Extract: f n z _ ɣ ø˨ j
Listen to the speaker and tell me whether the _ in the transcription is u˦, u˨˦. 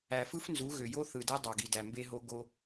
u˨˦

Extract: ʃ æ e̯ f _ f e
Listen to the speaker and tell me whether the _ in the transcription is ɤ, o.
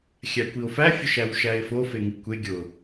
o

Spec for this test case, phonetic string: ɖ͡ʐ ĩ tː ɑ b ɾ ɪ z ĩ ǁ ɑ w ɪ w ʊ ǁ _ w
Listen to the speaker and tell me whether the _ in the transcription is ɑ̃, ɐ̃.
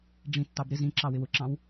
ɑ̃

